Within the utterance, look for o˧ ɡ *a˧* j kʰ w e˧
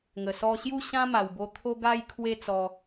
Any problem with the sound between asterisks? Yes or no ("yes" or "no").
no